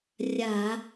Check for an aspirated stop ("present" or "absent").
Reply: absent